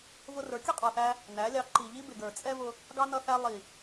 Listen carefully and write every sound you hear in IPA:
v ʊ˧ r ə˞˨˦ kʲ ʌ˦ qʼ ɑ˨ θ æ˧ | n æ˨˦ lʲ ɑ˧ ǃ i˨ ʎ i˦ b ɪ˨ ɡ ə˞˨ t͡sʼ ɛ˦ v ʊ˧ | ɡ ɑ˦ n ʌ˧ θ æ˧ lˠ i˨

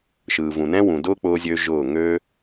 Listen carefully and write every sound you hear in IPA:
ʃ ɯː˨ v ũ˨ n ɛ̃˦ w ũ˨ d ʊː˦ k͡p ʊː˧ zʲ ø˧ ʒ ʊː˦˨ ŋ ø˦

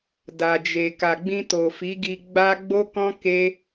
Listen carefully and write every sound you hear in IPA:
d a˨ d͡ʒ e˨ k a˨ ɡ͡b ĩ˧ t o˨ f i˨˦ ɡ i˧ ɡ͡b a˦ ɡ͡b o˦ k ɔ̃˦ k e˦

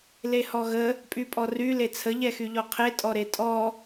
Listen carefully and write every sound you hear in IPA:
l e h ɔ ɣ ə | pʼ y pʼ ɔ r y l e t͡sʰ ə ʎ ɛ x y ʎ ɔ qʰ e tʼ ɔ ɾ e tʼ ɔ

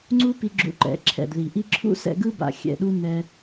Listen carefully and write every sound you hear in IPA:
ŋ͡ǀ u˦ p i˧ ɡ͡ǁ ṵ˧ ǃ ɛ̰˨ ǁʰ ɛ̰˨ d ð i˨ ʔ i˦ ǁʰ ṵ˦ s ɛ̰˧ ɡ ɯ˦ b a̰˨ xʲ ɛ̰˨ ɗ u˦ n ɛ˧

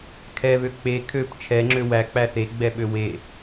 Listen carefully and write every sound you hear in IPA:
kʰ ɛ β ø k͡p e kʰ ø p t͡ʃʰ ɛ ŋ͡ǁ ø w æ k͡p æ θ e ɡ͡b ɛ ɓ ø w e

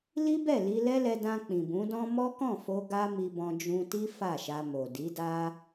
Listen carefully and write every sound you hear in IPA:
l i˦ b ɛ˦˨ l i˧ l ɛ˦ l ɛ˧ d ã˧ k͡p ĩ˨ b ũ˨˦ d ɔ̃˦ m ɔ˦ k ɔ̃˦˨ f o˧ ɡ a˦ m i˧ b ɔ̃˧ d͡ʒ ũ˧ t i˦ f a˦˨ ʃ a˧ m o˨ d i˨˦ d a˦

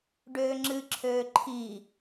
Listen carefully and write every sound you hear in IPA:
ɖ øː ŋ͡ǁ ɨ ǁʰ øː ǃʰ i

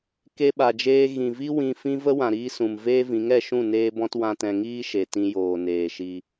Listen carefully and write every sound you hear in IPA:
k e˧ ɓ a˨ d͡ʒ eː˧ ɣ ĩ˨ v i˦ w ĩ˧ f ĩ˦ v ə˦ w ã˨ ɾ iː˧ s ũ˨ m v eː˦ v ĩ˨˦ ŋ ɛ˧ ʃ ũ˦˨ n eː˦ b ɔ̃˦ t w ã˦ t ɛ̃˧ ŋ iː˦ ʃ e˨ t ĩ˧ j oː˨ n eː˨ ʃ i˧

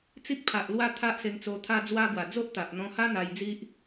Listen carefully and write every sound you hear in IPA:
t͡s i˦ k̚ pʰ a˨ ʔ l w a˧ t̪ʰ a˦ ʔ s e˧ ŋ t͡s o˧ t̪ʰ a˧ d͡z w a˧ ɡ w a˨˩ d͡z o˦ ʔ t̪ a˨ ʔ n̪ ɔ̃˧ h a˦ n̪ a˧ j d͡z i˦ ʔ

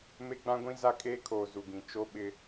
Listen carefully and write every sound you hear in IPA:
m e˦ ɡ͡b ã˦ ɡʷ ĩ˦ z a˦ kʼ eː˦ kʰ oː˨ z u˨ ɡ ĩ˨ t͡ʃ o˦ ɓ ɪ˦

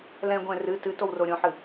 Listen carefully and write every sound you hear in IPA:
l ɛ̃ ɡʷ ɛ̃ r ɨ t ɨ t o w r o ɾʲ õ ħ ɨ

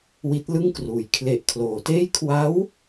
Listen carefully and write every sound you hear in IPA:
w i˦˥ t̚ l ɯ˥˩ ŋ k r uː˩˦ j kʰ l e˨˩ ʔ kʰ l oː˩˦ t eː˥˩ j kʰ w a˦˥ w

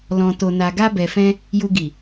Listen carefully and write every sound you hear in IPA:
l ɔ̃˨ t o˨ n a˨ ɡ a˧ b ɛ˨ f ɛ̃˧ | j u˨ ɡ i˨

